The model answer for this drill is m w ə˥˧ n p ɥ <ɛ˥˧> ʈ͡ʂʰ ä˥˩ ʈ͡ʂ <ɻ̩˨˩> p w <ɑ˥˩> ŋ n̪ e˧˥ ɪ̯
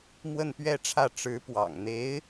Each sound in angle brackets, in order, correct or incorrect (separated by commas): correct, incorrect, incorrect